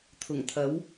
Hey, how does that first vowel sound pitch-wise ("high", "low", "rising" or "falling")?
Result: low